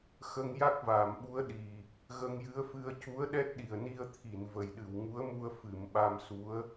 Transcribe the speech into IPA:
x ə˧ ŋ j a˦˥ k̚ v aː˨˩˨ m ɓ u˧˥ ə̯ ɗ i˨˩ | ɣ ə˧ ŋ j ɨ˧˥ ə̯ f ɨ˧ ə̯ c u˧˥ ə̯ ɗ ɛ˦˥ t̚ ɗ i˨˩ ə̯ n i˧ ə̯ t̪ʰ i˨˩˨ n v ə˨˩ j ɗ ɨ˨˩˨ w ŋ u˧˥ ə̯ m u˧ ə̯ f ɨ˨˩˨ m ɓ a˧ m s u˧˥ ə̯

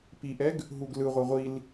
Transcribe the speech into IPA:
p i ʔ ɛ ɡ | ɦ u ɡ l ɯ ʁʷ ɯ ʁʷ i l

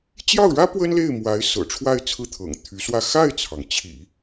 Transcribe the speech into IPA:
t͡ɕ j ɑ˥˩ ʊ̯ ɻ ä˥ p w ə˥ n l e˥˩ ɪ̯ m w a˧˥ ɪ̯ s ɤ̰˨˩ ʈ͡ʂʰ w a˥˧ ɪ̯ t͡sʰ ɹ̩˥˩ t̪ʰ ɤ̰˨˩ ŋ t̪ʰ y˧˥ s w ä˥˧ x a˥˩ ɪ̯ t͡sʰ ɑ˩ ŋ t͡ɕʰ ḭ˨˩˦

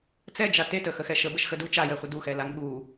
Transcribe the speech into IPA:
t͡s ɛ d͡ʒ a t e t ə x ə x ɛ ʃ ə b ə ʃ x ə d u t͡ʃ a j ɛ χʷ ə d u x ɛ l a ŋ ɠ u

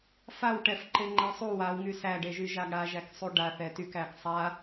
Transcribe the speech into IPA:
f a w ʈ ɛ f ǃ e ŋ͡ǃ ɛ sˤ u w a w ŋ y s æ ɖ e ʒ y ʒ a ɡ ɽ a ʒ æ k sˤ u ɖ a θ ɛ t y k æ ɡ sˤ a

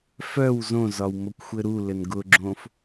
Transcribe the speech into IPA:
f œ w z õ z ɒ w m o kʷ xʷ ɘ ɾ u l ɘ n ɡ ʊ ɡ͡ǁ õ f

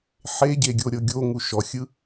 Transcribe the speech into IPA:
ħ e ɟ e ɡʲ o ɾʲ ɤ ɡʲ o ŋ u ʃ ɔ xʲ ɯ

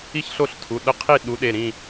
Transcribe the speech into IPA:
i˥˨ ç ɬ o˥˨ ɬ tʰ u˩˧˩ ɗ ə˥˨ qʰ i˥˨ ɗ u˨˥ ɗ e˩˧˩ ɾ ĩ˥˨

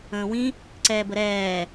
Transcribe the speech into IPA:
ə̃ː w ĩ | ǀ ɛː b ə ɾ ɛː

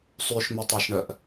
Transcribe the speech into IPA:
sˤ y ʃ m ʉ tˤ ɑ ʃ ɳ œ ʔ

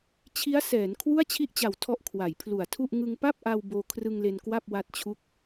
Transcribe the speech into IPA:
t͡ɕʰ i˦˥ a̯ s ɛː˩˦ n kʰ w u˥˩ a̯ t͡ɕʰ i˥˩ ʔ t͡ɕ a˨˩ w tʰ ɔ˦˥ ʔ kʰ w a˩˦ j pʰ l u˨˩ a̯ tʰ u˥˩ ʔ ŋ ɯ˧ ŋ p a˥˩ p̚ ʔ a˧ w b oː˧ kʰ r ɯ˧ ŋ l e˧ n k w a˥˩ p̚ w a˦˥ t̚ t͡ɕʰ u˦˥ k̚

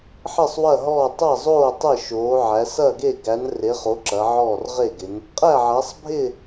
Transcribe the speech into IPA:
ħ ɪ˥˨ sˤ w ɐ˥˨ ɦ ɔː˥˨ tˤ ɐ˥˨ zˤ oː˥˨ tˤ ɪ˥˨ ʃ oː˨˦ ʕ æ˨˦ s ɐ˥˨ ɡ e˥˨ ɡ æ˨˦ n r e˨˦ χ o˨˦ ǁ ɐ˨˦ ʕ ɔː˥˨ r ʁ e˥˨ ɡ ɪ˨˦ n | qʼ æ˥˨ ʕ æ˨˦ sˤ bʱ ɪ˥˨

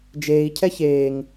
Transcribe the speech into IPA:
d͡ʒ eː i̯ cʰ ɛ ç eː ŋ

